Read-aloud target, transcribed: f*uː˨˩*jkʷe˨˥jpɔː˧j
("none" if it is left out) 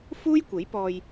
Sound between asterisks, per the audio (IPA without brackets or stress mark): uː˥